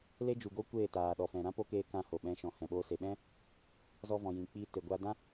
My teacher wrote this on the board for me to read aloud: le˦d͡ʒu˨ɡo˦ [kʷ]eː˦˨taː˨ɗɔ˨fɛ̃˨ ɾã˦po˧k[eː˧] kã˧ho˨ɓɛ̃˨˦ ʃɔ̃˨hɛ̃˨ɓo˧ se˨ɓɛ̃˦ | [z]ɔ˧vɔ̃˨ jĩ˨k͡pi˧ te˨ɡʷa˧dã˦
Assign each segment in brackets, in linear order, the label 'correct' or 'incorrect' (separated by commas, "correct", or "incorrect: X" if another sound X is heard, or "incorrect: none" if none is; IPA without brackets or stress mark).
correct, correct, correct